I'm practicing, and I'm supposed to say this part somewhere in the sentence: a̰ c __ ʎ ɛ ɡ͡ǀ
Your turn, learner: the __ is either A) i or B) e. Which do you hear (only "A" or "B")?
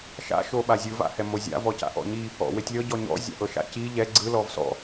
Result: A